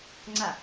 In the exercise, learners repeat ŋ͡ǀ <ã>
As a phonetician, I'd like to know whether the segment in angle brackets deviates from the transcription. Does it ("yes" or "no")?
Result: yes